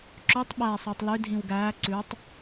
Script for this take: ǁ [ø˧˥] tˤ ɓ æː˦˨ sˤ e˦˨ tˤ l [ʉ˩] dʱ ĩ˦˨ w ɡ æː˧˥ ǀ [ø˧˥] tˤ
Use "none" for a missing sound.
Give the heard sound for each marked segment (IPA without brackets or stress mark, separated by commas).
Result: ø˧˥, ʉ˧˥, ʉ˧˥